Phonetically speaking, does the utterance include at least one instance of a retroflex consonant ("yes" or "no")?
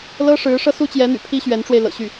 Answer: yes